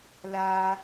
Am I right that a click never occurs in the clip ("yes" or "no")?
yes